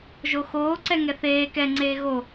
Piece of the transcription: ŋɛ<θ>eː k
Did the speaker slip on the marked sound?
no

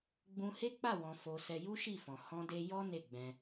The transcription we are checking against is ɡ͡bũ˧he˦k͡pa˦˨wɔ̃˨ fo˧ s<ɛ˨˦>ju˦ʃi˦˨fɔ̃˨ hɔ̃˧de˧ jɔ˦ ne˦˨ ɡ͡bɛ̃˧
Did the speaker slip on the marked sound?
yes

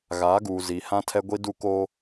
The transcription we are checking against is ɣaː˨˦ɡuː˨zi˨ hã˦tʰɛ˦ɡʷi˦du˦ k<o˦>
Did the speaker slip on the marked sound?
no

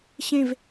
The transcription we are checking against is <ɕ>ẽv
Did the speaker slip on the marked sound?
no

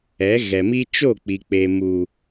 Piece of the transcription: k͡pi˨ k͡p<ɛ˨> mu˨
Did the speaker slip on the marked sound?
yes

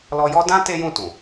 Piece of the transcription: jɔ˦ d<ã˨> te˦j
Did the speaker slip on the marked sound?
yes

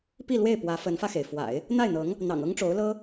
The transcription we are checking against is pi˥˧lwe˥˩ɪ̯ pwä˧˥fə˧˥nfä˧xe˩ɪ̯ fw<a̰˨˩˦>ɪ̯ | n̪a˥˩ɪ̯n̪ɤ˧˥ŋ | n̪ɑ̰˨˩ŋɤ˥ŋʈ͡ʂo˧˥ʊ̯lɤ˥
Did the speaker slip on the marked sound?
no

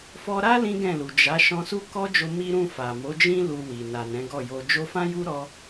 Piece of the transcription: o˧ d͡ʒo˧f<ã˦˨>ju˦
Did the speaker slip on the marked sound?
yes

